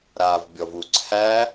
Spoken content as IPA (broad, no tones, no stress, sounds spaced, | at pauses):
ɾ aː v bʲ ɔ v u ǀʰ æ